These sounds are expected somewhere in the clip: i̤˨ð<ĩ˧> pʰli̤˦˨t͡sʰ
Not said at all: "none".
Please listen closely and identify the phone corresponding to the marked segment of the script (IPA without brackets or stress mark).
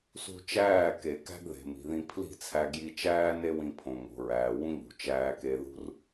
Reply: ĩ˧